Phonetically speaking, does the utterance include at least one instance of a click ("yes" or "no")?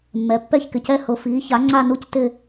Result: yes